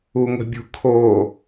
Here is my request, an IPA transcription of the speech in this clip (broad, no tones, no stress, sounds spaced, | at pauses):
u ŋ ə̤ bʲ ṳ kʰ o